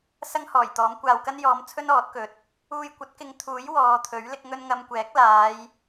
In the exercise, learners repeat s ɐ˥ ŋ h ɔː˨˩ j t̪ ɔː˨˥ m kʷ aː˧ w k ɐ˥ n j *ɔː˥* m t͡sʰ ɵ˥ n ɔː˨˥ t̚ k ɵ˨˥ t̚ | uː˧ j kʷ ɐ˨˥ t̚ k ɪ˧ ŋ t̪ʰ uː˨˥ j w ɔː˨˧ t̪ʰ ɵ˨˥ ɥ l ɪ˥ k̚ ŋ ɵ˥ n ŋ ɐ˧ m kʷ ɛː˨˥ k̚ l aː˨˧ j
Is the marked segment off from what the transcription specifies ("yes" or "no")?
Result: yes